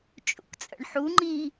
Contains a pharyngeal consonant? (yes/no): yes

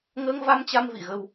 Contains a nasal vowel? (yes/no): no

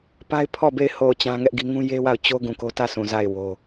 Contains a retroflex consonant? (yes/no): no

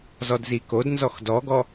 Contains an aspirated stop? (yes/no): no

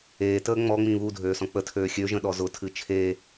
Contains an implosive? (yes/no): yes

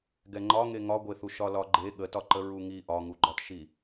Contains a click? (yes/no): yes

